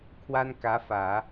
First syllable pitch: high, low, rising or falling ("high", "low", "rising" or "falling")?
high